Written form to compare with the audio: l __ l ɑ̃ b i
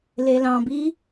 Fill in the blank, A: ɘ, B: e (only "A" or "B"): B